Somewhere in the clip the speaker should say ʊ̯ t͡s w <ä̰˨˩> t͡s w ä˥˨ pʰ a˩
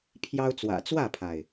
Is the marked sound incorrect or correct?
correct